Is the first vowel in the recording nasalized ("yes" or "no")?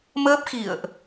no